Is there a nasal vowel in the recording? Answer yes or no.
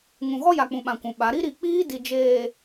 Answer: yes